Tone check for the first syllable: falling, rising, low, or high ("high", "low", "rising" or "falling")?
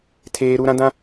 high